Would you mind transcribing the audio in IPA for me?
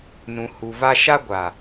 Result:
nũ˨hu˨ va˦ ʃa˦ɡʷa˨

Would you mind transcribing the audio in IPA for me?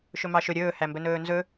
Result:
ʃɵmɑʃɵ ɾʲɵːhæ mbɵnɵːnzɵ

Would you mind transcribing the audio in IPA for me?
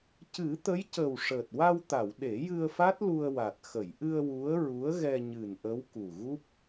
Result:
cɨ˨˩˦t̪ə˧˥jcə˨˩w ʂəː˨˩t̚wa˧wt̪a˨˩˨w ɗe˨˩˦jɨ˧ə̯fa˦˥t̚ lu˧ə̯wa˨˩t̚ xə˨˩˨jʔɨ˧ə̯ wu˧˥ə̯ ɹu˧˥ə̯ɣɛ˧ ɲɨ˨˩nʔə˧˥w ku˨˩ɣu˦˥p̚

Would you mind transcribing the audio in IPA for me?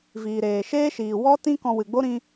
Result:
viː˨ɾeː˨ ʃeː˦ʃiː˨ wɔ˦ tĩ˦ kɔ̃˧wɨ˨ɡ͡bo˦ ɾĩ˦

